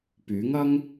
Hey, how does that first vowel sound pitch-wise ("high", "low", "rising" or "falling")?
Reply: rising